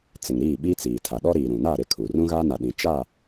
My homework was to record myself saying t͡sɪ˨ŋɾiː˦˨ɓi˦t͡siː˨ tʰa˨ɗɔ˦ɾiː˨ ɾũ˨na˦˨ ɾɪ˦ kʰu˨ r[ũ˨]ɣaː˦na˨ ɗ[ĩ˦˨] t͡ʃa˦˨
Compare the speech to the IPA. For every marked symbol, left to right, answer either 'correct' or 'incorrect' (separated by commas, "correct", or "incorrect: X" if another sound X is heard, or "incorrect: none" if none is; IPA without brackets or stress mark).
incorrect: ũ˦, incorrect: ĩ˨